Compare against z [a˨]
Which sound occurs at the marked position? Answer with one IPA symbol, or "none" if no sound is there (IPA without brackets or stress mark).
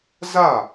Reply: a˦˨